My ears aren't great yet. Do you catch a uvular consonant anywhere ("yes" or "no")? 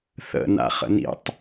yes